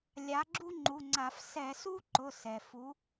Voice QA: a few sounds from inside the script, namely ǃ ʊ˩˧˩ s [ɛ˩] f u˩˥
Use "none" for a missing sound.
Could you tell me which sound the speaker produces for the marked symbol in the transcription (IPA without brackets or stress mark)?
ɛ˩